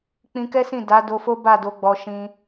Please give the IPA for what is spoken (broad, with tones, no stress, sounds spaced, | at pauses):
k͡p ĩ˧ k ɛ˦ s ĩ˦˨ d a˨˦ d o˧ f o˦ b a˦˨ d o˨˦ ɡ͡b ɔ˧ ʃ ĩ˦